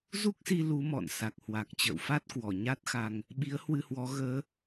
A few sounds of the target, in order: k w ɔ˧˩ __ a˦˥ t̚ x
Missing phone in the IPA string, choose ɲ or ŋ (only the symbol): ɲ